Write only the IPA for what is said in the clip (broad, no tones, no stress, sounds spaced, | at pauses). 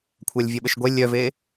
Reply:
kʷʰ a lʲ vʲ a ɓ ə ʃ ɡʷ ɛ lʲ œ v e